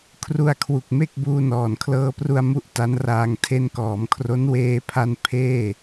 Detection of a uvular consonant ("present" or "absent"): absent